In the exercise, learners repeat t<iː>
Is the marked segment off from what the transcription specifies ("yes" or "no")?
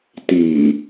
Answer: no